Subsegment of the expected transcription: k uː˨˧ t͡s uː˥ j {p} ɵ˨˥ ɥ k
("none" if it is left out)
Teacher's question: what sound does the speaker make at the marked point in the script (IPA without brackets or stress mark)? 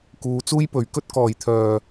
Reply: p